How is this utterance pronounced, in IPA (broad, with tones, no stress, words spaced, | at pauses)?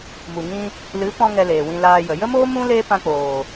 mu˨ŋĩ˧ | lɨ˨˦pɔ̃˧ ŋɛ˧leː˨wĩ˧ laː˧jə˨ jə˦moː˦ mũ˦ le˦ pã˧k͡poː˨